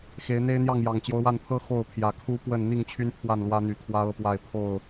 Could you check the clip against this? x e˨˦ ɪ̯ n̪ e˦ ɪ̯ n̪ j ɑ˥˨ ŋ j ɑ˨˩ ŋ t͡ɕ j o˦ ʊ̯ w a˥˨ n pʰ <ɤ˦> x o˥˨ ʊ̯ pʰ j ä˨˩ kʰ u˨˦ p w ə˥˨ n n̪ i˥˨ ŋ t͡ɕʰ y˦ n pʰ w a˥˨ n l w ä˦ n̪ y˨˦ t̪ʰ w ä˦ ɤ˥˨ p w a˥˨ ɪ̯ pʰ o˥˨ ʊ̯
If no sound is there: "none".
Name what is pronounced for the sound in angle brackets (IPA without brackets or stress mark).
ɤ˦